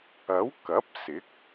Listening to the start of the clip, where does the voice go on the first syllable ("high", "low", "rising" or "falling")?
rising